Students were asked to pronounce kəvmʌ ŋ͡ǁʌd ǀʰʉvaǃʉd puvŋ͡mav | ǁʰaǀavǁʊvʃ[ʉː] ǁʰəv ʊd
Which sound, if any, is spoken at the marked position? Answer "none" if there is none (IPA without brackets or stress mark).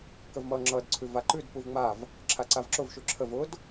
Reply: ʉ